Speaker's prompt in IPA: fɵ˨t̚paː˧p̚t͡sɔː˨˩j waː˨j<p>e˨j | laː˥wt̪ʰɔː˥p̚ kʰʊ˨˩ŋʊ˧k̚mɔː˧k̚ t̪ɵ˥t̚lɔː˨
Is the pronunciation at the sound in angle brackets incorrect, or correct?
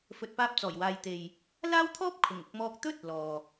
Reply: incorrect